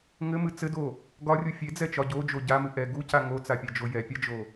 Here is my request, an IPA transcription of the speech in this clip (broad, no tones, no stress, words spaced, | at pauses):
ŋɘmɨ t͡sɘdo | ɡɒrʲu fʲed͡zɛt͡ʃɒ ɟod͡ʒo ɟamɨ ʔɛ ɡuca ŋot͡sapʲɛd͡ʒo jɛpʲad͡ʒo